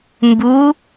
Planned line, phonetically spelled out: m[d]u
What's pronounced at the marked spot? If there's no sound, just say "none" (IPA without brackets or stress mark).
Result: b